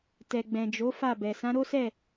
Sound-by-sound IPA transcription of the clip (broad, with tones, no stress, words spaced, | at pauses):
tɛ˨ɡ͡bɛ̃˨ d͡ʒo˨˦ fa˦˨bɛ˨ sã˨˦ɾo˦sɛ˦˨